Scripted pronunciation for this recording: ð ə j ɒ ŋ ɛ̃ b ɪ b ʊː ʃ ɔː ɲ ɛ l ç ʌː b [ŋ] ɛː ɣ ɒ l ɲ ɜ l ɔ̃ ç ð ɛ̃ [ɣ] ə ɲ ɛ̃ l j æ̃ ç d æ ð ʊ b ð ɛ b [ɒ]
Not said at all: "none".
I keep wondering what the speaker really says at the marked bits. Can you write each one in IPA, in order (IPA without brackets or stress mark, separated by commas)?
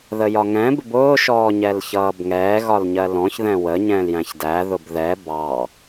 ŋ, w, ɑ